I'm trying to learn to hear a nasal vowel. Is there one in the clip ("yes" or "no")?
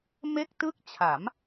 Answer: no